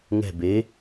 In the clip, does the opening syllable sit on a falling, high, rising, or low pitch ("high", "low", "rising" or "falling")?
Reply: falling